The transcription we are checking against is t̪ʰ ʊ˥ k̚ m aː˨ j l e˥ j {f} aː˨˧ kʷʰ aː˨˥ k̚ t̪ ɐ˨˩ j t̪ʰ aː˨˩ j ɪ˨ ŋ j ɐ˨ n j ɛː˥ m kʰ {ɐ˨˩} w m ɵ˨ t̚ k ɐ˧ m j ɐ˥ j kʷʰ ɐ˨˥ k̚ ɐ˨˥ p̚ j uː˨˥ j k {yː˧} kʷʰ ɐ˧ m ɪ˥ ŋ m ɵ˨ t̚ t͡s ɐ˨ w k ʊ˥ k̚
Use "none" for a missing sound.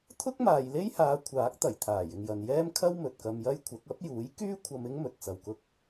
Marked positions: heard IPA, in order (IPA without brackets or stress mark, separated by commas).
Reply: h, ɐ˥, yː˥